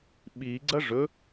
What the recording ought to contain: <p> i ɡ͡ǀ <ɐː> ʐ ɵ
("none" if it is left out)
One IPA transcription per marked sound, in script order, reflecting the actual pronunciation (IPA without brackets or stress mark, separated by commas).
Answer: ɓ, ɐ